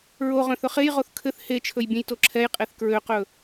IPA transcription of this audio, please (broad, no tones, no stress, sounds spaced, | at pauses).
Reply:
ɹ o ʁ œ̃ θ ɵ χ e j ʁ o θ kʰ ɘ θ h e t͡ʃʰ ɵ j bʲ ɛ̃ j t o ǁʰ ɛ j qʼ e θ k ɹ ø q ɵ